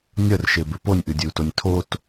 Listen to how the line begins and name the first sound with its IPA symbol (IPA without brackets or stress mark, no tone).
nʲ